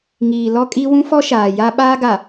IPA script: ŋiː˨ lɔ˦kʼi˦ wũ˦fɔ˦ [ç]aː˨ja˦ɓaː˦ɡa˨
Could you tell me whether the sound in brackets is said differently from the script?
yes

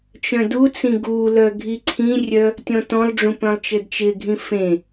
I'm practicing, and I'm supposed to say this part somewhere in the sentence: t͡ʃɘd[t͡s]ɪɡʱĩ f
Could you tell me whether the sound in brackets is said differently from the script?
yes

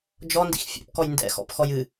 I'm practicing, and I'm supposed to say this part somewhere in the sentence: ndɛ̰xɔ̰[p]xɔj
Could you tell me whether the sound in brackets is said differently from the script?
no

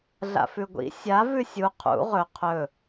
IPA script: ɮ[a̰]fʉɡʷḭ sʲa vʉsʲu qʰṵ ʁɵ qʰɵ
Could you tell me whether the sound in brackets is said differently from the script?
no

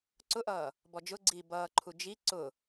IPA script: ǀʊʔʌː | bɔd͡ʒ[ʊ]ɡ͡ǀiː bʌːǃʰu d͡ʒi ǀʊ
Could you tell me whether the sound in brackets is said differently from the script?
no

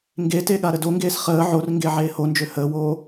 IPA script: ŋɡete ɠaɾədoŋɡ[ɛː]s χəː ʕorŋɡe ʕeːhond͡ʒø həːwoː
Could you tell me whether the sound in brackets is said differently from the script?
yes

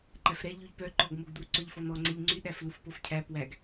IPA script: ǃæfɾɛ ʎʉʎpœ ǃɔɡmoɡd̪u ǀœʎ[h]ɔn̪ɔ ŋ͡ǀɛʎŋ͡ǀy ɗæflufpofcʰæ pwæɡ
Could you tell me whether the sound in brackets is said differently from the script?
yes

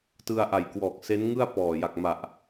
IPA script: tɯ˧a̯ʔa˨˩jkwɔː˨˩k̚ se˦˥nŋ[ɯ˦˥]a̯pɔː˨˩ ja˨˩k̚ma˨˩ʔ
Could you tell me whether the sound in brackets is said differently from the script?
yes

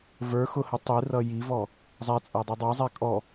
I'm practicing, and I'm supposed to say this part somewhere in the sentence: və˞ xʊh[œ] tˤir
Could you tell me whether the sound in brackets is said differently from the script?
yes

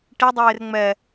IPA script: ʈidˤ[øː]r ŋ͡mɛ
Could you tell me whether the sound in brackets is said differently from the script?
yes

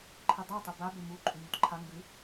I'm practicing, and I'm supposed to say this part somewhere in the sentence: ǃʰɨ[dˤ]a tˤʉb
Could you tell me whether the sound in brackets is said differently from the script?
no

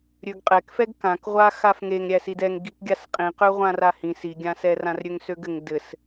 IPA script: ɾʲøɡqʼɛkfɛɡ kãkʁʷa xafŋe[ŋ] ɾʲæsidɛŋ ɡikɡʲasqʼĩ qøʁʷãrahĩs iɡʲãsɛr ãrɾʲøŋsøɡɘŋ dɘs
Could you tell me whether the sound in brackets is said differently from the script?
no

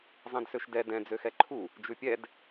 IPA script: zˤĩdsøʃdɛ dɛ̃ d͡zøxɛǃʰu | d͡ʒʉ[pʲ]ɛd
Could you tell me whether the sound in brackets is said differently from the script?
no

